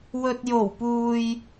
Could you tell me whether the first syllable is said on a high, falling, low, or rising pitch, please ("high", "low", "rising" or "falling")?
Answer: low